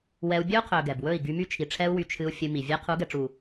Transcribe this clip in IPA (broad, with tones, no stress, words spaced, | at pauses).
wɛ˧u̯ bʲɵ˦u̯qʰɵ˨ ɡɛ˨bwɵ˦˨i̯ ɡy˧my˦t͡ʃʰi˨ ʈ͡ʂʰɛ˦u̯wy˧ t͡ʃʰɨ˧u̯ fʲɨ˧ mi˨ vʲɛ˧ qʰu˨˦ɡɛ˨ʈ͡ʂu˨